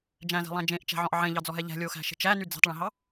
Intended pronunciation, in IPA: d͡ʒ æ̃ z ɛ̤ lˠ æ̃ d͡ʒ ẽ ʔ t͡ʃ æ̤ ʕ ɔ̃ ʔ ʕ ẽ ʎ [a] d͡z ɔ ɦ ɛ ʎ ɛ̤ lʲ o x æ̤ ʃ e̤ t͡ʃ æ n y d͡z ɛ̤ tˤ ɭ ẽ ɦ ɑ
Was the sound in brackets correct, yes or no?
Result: no